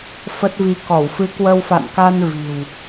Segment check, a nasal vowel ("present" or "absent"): absent